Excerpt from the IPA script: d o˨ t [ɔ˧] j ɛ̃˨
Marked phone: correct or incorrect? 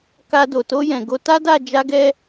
incorrect